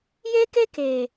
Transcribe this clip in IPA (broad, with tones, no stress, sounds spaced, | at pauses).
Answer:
j e˦ k e˦ k eː˨